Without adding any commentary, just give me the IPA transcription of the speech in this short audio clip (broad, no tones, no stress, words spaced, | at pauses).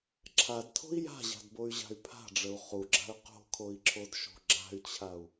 ǁʰadtʰo̤i̯ ja̤ʑa̤dboy̯ʑa̤y̯ pʰa̤ɖ͡ʐəu̯ χuɡ͡ǁa̤y̯ qo̤kʰoi̯ǁʰodʃo̤ ɡ͡ǁa̤y̯t͡ɕʰau̯